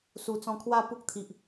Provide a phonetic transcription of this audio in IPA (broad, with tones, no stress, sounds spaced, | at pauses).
s u˨˩ t͡s ɔ̃˧ kʰ w a˥˧ p u˦ k̚ t̪ʰ i˨ ʔ